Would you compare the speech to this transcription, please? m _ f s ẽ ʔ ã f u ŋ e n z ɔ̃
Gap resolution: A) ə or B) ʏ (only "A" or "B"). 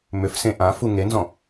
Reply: B